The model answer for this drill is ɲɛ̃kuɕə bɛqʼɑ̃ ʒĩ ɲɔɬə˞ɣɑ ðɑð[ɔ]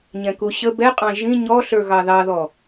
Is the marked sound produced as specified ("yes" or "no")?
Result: yes